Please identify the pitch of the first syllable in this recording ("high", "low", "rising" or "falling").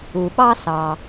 low